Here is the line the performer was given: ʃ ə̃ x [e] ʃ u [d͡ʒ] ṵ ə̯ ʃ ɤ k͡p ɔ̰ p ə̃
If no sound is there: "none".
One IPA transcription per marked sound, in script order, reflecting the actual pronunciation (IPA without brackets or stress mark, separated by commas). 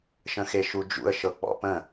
e, d͡ʒ